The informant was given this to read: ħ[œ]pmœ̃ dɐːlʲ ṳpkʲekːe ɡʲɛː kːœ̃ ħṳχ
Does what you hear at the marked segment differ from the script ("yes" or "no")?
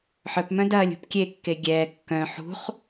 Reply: no